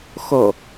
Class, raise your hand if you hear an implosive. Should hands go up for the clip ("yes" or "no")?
no